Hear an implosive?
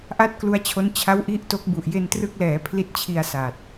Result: no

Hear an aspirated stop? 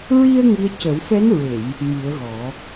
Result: no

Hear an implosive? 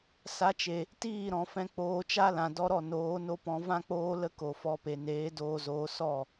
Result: no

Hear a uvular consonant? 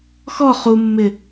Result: yes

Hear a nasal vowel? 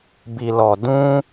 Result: yes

